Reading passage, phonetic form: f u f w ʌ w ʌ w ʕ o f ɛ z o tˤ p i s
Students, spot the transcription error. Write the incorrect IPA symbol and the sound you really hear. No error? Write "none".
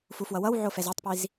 s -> z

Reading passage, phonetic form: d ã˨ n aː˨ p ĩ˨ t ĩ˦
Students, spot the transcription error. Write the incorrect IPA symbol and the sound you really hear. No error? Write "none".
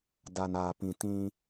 ã˨ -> a˨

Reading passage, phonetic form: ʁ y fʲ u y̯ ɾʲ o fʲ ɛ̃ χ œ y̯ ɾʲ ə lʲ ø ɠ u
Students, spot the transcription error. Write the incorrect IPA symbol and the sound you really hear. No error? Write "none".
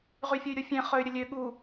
none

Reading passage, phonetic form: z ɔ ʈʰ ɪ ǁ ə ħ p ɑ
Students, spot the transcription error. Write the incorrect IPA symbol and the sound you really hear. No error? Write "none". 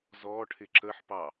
none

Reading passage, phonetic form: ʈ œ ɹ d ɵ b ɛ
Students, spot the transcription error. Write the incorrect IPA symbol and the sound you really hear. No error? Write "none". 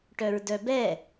ɵ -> œ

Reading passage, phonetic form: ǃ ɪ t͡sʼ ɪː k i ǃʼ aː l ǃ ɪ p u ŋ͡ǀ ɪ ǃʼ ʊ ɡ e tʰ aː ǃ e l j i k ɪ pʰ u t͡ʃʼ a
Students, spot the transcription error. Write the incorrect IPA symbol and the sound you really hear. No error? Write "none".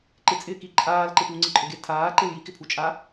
none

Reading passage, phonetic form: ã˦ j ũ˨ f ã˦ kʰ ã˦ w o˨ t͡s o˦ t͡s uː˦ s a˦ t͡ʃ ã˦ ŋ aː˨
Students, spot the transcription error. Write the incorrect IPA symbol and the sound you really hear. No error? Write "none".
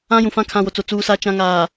none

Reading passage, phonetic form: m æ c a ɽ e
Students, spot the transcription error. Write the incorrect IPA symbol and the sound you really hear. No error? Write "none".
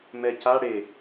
æ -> ɛ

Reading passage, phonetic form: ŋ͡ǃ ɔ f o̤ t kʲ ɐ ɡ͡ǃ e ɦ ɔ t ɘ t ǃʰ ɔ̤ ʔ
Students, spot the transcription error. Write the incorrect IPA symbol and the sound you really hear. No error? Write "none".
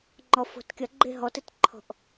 none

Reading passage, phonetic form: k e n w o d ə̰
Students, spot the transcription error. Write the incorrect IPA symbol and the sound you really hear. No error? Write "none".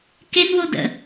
none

